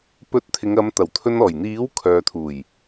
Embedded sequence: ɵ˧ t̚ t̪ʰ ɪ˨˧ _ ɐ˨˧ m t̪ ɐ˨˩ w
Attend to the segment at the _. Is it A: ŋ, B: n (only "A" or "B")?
A